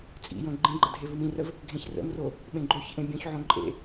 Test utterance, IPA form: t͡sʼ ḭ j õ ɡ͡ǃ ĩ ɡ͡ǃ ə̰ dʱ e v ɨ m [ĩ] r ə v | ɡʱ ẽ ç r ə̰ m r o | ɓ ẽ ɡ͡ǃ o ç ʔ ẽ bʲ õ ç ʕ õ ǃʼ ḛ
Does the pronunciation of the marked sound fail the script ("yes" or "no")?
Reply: no